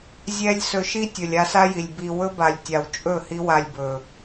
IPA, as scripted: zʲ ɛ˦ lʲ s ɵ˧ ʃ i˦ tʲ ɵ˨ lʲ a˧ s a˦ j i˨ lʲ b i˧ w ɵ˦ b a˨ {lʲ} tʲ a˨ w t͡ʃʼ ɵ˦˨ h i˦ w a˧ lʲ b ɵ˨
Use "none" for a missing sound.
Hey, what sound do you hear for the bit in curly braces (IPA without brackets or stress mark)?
lʲ